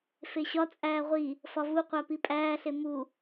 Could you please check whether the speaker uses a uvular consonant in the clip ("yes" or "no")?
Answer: yes